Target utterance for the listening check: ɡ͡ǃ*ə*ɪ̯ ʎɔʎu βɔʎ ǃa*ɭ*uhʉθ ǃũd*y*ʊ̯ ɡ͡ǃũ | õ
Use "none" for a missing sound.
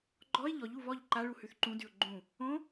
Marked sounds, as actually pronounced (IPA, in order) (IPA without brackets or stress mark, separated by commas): ɔ, ɭ, y